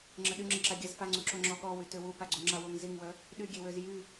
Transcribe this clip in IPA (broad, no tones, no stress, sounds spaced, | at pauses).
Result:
ŋ͡ǁ ə ɗ y ŋ͡ǁ ə ǁ a ɡʲ a z f a ŋ͡ǀ u ǁ o ŋ͡ǁ ɔ ɠ ɔ w y t ø w u p a ɡ͡ǀ u ŋ͡ǁ a w o ŋ z i ŋ w œ | ɗ y ɡʲ e w ø z j y